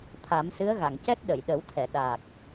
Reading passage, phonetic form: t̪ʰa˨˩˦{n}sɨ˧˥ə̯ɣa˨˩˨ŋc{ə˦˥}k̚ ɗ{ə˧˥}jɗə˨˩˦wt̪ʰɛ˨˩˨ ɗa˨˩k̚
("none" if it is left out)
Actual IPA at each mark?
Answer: m, ɛ˦˥, ə˨˩˨

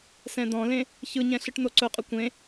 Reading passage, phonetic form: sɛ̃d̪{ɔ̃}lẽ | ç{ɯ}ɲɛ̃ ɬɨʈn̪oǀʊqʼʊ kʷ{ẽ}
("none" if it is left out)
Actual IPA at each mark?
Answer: ɔ̃, ɯ, ẽ

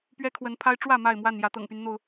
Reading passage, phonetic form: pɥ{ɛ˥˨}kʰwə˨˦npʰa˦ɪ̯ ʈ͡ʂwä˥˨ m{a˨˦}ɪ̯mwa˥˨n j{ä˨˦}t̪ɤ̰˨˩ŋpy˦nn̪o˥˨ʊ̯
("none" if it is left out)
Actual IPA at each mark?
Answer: ɛ˦, a˥˨, ä˨˦

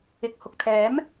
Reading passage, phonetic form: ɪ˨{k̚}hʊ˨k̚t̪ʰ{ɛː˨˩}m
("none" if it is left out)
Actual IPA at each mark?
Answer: k̚, ɛː˨˥

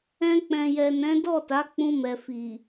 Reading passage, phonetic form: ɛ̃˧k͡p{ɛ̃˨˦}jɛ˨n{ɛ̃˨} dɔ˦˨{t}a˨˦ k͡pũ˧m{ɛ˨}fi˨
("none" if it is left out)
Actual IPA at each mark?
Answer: ɛ̃˨, ɛ̃˨˦, t, ɛ˨

